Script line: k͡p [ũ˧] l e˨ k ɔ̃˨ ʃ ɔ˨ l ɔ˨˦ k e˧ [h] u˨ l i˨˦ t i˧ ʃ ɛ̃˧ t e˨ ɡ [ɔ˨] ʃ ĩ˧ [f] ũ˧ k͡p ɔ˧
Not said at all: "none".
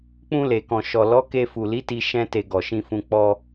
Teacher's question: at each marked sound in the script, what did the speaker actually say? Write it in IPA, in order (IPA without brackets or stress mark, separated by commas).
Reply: ũ˧, f, ɔ˨, f